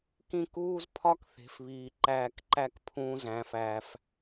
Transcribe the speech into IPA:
kĩ˦˨kuː˦zpʰɒ˦kθe̤˨f βiː˨ǃæː˧kǃæ˦kpʰũː˧ zæ̃˨fæː˨f

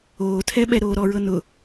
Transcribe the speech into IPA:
oːtʰɛ ɓɛɾoːɾɔɹɤ nʊ

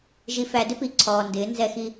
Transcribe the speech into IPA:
ʒi˨fæ˨dɪ˦pi˨ ǀʰɔː˨ndɪː˨˦ nzɛ˦xi˦

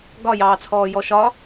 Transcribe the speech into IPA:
ɡɒjɑːt͡sʰɔːjɔ ʃɒ

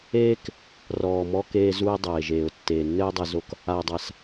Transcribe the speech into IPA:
eː˥k | rɔː˩mɔ˧keː˧zu˧ɪ̯ dˤeː˩ʒeː˩ʊ̯ tːeː˩nːɘː˥dˤe˧ zo˧k | a˩ɪ̯dˤa˩s

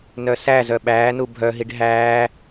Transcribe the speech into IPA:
nœsæzœ ɓæːnu bʱœɦiɖ ɦæː

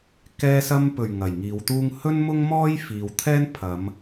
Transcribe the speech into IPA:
kɛː˧sɐ˧mpɵ˨˩ɥ ŋɐ˨˩jŋiː˨˧wt̪uː˥ŋ hɵ˥nmʊ˥ŋmɔː˥j fiː˨wt̪ʰɛː˥n pʰɐ˨˧m

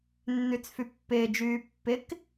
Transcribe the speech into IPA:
nːyt͡sfypːɪːd͡ʒyː pːɪk

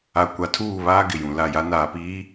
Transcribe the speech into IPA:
a˨ kʷa˨tʰuː˦˨βaː˦ ɡɪ˨jũ˨la˦˨ja˦ naː˨piː˨˦

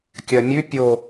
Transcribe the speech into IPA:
kʲɜmʲʉ pʲo

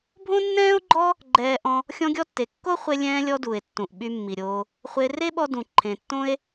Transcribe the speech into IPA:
bʱõ˥nːɛ̃ː˥o̯ɡ͡ǃɔ˥ | ɡ͡ǃɛː˧ʔɔ̃˧ | xʲɔ̃˧ɡʲɔ˧tːe˩ kːo˥χʷe˧ lʲɛ̃ː˧lʲɔ˧du˩e̯tːũ˩ʔ ɓy˧mːi˩ɾʲoː˧ | χʷe˧ re˥ɓɔ˧dũ˩ ǃʰẽ˩tːõ˥e̯

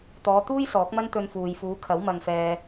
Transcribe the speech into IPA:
t̪ɔː˨˧t̪uː˥j sɔː˨˥k̚mɐ˥nt̪ɵ˧nfuː˨j fuː˨˧kʰɐ˨˥w mɐ˧ŋfɛː˧

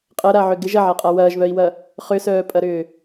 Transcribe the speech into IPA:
qʼɐɾaʕʏ ɡɪʒ ɐʕaqʼa wɐːʒβœi̯wɐ | χʏsœːpʼɐɾʏː

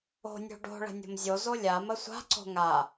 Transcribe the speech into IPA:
o̤nʲo̤ ɖo̤ ɭə̤nʲo̤mzʲozo lʲamə sʷa̤ǀo̤ ŋa

